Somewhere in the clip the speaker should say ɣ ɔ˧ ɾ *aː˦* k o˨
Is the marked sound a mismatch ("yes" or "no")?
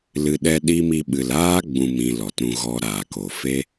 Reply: yes